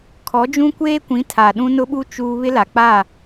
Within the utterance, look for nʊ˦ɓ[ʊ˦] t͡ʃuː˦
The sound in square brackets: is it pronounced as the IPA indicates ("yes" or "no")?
no